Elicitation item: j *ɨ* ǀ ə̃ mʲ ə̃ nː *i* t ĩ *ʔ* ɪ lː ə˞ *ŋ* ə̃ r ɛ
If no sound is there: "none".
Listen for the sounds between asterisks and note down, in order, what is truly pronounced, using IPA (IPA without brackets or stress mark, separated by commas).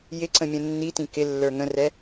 ɪ, i, k, ŋ